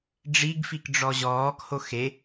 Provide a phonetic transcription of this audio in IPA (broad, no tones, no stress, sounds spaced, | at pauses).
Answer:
ɖ͡ʐ i ɡ f i k ɖ͡ʐ ɔ ʑ ɔː k h o x e